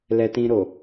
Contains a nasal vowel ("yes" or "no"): yes